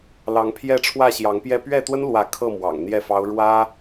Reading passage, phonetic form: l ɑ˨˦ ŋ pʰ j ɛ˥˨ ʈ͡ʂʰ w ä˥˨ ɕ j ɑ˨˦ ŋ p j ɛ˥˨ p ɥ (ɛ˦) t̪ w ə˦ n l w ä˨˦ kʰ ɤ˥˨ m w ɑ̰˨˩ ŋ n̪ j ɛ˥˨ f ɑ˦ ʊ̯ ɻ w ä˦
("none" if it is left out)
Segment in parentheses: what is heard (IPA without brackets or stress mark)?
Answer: ɛ˥˨